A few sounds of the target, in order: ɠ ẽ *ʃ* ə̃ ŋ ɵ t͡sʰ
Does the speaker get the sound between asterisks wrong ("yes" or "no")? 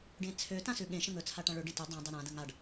no